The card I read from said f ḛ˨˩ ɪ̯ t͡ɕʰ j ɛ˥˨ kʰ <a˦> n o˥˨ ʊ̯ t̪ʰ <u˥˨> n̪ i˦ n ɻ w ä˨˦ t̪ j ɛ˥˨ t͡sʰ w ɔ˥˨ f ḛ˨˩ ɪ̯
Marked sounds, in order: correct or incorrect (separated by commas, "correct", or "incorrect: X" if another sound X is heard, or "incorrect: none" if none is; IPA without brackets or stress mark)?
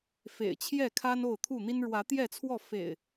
correct, correct